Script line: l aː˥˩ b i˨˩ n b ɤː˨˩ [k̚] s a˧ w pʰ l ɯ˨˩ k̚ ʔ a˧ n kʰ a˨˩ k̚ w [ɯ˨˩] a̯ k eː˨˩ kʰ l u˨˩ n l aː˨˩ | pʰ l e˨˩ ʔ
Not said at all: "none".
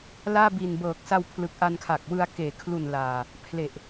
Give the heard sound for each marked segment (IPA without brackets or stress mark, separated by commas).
k̚, ɯ˧